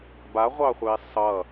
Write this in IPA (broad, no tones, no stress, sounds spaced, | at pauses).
b a ʁʷ ɑ χʷ e sˤ ʌ